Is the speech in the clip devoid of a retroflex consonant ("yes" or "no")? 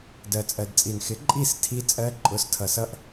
yes